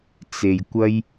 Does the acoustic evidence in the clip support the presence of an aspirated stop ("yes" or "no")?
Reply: no